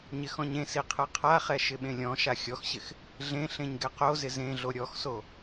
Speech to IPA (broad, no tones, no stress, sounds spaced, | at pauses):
ɲ ɪ x ɔ̃ ɲ ẽ s i qʰ ɯ qʰ a χ ɛ ʃ ɪ ɓ ẽ lʲ ɔ̃ ʃ a xʲ ɔ x ɕ ɪ x | ɮ ẽ ɬ ẽ ɲ ɡ ɛ q o z ɪ z ẽ ɮ o ɾʲ ɔ x s o